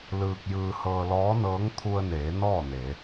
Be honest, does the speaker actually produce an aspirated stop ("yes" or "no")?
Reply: yes